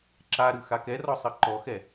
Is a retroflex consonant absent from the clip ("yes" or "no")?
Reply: yes